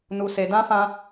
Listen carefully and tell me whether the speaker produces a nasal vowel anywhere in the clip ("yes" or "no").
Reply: yes